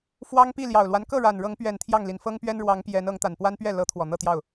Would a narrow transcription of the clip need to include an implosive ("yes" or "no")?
no